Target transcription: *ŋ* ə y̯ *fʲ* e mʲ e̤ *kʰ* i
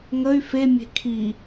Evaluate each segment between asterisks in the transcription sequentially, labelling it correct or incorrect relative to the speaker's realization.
correct, incorrect: f, correct

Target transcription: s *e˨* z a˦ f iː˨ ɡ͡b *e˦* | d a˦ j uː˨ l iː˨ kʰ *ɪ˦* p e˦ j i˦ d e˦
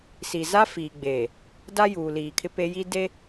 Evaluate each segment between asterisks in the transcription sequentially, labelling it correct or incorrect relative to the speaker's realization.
incorrect: i˨, incorrect: e˨, correct

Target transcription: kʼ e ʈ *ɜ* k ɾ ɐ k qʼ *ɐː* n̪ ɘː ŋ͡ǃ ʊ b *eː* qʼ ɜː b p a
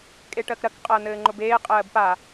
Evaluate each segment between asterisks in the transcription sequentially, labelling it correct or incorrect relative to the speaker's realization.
correct, correct, correct

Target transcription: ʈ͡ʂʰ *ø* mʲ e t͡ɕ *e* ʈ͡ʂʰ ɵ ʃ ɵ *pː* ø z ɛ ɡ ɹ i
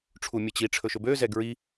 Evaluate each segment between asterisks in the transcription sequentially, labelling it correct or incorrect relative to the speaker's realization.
incorrect: u, incorrect: i, incorrect: b

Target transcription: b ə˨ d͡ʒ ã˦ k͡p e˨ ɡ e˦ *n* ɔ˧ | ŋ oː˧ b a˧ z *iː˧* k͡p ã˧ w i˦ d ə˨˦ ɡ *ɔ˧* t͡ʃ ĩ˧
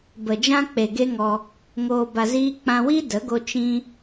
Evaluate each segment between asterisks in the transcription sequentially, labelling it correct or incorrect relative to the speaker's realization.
incorrect: ŋ, incorrect: iː˦, incorrect: o˧

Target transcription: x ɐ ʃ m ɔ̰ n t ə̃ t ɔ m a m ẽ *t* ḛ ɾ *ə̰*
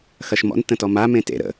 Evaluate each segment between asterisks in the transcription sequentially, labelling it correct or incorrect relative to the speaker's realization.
correct, correct

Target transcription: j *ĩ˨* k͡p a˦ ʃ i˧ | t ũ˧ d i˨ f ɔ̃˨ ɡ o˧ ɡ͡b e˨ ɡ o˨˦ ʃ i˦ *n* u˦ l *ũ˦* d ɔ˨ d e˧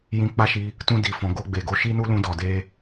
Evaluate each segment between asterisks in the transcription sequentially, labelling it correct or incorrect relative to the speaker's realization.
incorrect: ĩ˧, correct, incorrect: ũ˧

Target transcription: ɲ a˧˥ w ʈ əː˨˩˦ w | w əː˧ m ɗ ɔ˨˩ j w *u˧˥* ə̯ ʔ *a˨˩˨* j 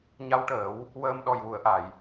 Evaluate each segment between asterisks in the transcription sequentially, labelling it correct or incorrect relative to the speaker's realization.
incorrect: u˨˩˨, correct

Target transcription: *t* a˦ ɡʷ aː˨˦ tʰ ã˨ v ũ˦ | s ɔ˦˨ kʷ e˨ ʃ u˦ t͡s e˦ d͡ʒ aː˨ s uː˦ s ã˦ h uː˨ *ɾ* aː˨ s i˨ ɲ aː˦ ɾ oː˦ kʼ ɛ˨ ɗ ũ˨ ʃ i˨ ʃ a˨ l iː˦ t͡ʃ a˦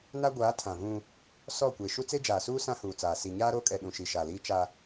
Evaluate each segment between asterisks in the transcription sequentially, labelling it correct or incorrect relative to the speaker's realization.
incorrect: n, incorrect: t͡s

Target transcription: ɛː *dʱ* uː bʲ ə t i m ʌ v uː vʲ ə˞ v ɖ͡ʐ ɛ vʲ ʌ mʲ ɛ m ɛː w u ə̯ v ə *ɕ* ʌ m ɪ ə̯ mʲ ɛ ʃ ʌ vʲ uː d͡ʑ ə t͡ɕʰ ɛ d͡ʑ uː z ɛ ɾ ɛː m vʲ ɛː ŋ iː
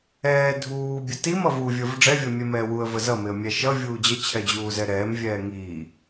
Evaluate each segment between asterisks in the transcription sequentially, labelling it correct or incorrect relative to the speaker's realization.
correct, incorrect: z

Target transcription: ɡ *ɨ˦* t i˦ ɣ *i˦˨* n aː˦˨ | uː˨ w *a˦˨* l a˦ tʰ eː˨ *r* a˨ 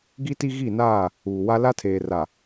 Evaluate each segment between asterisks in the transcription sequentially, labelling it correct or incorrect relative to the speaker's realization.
incorrect: i˦, correct, incorrect: a˦, correct

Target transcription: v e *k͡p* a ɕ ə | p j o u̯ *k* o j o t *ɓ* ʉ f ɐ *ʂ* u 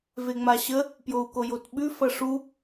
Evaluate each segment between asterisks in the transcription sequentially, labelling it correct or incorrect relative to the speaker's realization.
incorrect: ŋ͡m, correct, correct, correct

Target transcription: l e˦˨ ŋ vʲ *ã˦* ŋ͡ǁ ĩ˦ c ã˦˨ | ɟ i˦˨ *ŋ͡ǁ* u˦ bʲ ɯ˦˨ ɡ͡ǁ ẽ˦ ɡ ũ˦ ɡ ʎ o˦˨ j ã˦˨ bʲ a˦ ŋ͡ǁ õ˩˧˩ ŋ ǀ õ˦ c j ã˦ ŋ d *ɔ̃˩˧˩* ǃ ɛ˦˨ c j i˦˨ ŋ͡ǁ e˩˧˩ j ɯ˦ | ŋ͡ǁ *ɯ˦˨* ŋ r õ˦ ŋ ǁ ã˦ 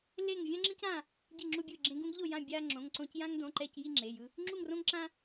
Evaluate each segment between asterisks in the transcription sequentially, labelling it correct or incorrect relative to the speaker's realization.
correct, correct, incorrect: õ˩˧˩, incorrect: u˦˨

